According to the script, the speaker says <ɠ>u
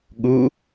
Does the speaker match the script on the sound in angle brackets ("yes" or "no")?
yes